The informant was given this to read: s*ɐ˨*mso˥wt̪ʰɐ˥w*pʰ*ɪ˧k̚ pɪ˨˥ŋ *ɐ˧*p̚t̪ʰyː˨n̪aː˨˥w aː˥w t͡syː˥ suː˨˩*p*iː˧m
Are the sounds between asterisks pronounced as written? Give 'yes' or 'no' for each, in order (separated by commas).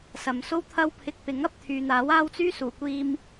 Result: yes, yes, yes, no